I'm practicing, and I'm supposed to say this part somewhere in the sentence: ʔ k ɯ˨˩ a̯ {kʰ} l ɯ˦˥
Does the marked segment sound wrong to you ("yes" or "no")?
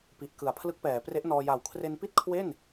yes